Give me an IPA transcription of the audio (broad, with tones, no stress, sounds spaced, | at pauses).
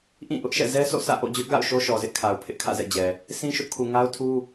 ʔ ĩ˦˨ ʔ ʊ˦ ʔ ʃ ɛ̰˦˨ z ɛ˦ s o̰˦˨ s ä̰˦˨ ʔ o̰˦˨ d͡ʑ ʊ˦ ʔ ɡ a̰˦˨ ʊ̯ ʃ o˦ ʃ ɔ˨ z ɪ˦ ʔ kʰ a˨ ʊ̯ pʰ ɪ˦ ʔ kʰ ä̰˦˨ z ɛ̰˦˨ d͡ʑ ɛ˨ | sʰ ĩ˦ ʃ ʊ˦ ʔ kʰ u˨ ŋ a˦ ʊ̯ tʰ u˦